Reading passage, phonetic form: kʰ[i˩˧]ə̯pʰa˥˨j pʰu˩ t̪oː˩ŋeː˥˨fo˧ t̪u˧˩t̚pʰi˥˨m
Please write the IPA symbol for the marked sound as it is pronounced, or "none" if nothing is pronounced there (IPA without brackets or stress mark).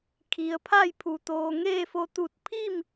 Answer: i˩˧